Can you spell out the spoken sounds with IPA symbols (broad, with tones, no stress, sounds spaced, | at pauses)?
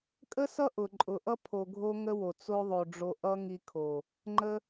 kʼ ə˦ s ʌ˦ ʔ ʊ˨ ǃʼ ʊ˨ ʔ ʌ˦ pʰ o˨ ɡʱ o˧ ŋ ə˦ w o˨ t͡s o˧ ðˤ o˨ ɖ͡ʐ o˧ ʔ ʌ˦ ŋ i˧ kʰ o˨ | ŋ͡ǃ ə˧